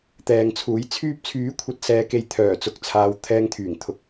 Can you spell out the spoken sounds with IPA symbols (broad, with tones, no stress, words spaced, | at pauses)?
t̪ɛː˨ŋt͡sʰuː˨˥jt͡sʰyː˥p̚ t͡sʰyː˨˥kʷʰɐ˨t̚sɛː˨ke˨j t̪ʰœː˨˩ t͡sʊ˨k̚t͡sʰaː˨w t̪ʰɛː˧ŋt̪ʰyː˨˩ŋ t̪ʰʊ˧k̚